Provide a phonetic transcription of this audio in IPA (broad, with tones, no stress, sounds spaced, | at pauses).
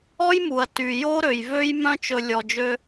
ɔ˦ j m u˨ ɐ̯ t y˨ j o˦ ɾ ø˨ j v ø˦ j m œ̃˦ t͡ʃ ɵ˧ lʲ ɔ˨ d͡ʒ ø˧